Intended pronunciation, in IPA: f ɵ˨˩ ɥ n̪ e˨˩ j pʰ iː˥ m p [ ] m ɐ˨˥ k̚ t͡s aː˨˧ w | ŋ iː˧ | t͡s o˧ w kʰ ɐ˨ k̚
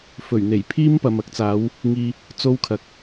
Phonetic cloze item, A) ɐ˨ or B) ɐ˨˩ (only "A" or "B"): A